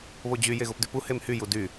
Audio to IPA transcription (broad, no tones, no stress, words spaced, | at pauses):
βod͡ʑy jeɣopdypu hemhy judy